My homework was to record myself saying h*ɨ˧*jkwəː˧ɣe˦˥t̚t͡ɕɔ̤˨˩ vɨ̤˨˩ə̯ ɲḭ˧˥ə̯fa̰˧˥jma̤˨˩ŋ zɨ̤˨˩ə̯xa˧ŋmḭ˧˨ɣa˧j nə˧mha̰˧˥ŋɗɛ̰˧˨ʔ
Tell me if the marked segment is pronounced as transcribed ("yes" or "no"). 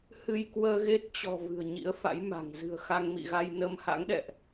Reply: yes